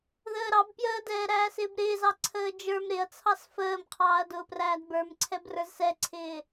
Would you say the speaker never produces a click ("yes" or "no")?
no